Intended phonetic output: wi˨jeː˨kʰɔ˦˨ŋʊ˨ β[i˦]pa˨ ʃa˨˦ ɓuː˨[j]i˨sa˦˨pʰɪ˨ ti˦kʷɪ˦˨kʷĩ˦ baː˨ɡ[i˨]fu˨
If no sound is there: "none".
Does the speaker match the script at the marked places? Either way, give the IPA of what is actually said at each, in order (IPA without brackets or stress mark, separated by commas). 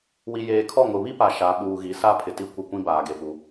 i˦, ɣ, e˨